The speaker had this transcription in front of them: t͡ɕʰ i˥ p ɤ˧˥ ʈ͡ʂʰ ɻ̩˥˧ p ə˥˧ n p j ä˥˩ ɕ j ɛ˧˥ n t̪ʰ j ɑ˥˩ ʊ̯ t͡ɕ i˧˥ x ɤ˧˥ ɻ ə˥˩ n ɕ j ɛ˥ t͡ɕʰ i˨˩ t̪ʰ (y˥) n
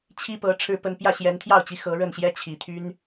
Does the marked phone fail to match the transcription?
no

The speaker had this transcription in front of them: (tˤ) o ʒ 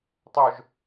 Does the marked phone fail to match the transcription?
no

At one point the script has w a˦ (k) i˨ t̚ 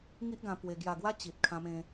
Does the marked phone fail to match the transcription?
yes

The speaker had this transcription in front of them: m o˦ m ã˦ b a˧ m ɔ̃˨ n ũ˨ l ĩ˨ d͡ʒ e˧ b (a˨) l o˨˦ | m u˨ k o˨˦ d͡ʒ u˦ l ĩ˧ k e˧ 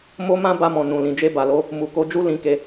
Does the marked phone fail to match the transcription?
no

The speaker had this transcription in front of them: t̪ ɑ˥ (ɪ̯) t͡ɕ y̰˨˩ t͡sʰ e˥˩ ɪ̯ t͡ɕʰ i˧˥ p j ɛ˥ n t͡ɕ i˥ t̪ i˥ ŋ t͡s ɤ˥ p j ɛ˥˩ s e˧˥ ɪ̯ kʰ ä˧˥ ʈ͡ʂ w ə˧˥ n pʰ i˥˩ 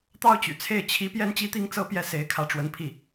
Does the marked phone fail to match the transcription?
yes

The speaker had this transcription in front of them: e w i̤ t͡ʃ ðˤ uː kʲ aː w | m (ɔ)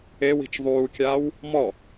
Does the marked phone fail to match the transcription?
no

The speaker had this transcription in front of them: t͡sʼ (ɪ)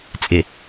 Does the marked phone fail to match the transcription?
no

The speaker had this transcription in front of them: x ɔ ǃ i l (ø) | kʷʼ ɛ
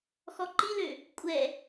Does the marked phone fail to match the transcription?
no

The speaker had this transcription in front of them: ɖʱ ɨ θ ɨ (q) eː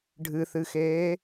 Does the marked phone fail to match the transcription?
yes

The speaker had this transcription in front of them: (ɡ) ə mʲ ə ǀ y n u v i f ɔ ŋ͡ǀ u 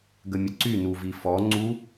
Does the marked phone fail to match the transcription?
no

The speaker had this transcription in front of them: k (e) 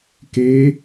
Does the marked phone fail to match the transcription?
no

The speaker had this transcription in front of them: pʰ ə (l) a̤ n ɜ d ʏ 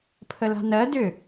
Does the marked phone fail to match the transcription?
no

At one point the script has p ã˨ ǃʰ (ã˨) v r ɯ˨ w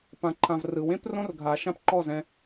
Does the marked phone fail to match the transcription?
no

